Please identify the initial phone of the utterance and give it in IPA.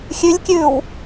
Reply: xʲ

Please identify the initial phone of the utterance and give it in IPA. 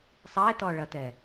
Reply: sˤ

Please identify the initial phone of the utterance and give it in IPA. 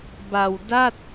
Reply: b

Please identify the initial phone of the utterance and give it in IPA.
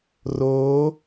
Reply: r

